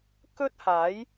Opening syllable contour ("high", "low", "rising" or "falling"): high